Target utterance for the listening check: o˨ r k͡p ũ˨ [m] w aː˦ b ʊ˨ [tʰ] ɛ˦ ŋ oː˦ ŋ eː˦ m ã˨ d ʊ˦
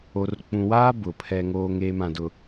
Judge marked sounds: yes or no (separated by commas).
no, no